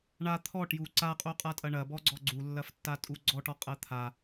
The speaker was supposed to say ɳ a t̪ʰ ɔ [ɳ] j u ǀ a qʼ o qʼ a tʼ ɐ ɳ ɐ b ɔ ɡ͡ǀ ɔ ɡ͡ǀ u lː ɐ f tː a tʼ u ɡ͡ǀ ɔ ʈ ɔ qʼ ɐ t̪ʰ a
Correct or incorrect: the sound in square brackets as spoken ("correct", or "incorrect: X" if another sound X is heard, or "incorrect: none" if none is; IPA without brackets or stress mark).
incorrect: ʈ